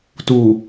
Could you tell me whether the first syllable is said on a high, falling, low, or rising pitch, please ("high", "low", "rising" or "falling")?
low